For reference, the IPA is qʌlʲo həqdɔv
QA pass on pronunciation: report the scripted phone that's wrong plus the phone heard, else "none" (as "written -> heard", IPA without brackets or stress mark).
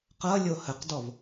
none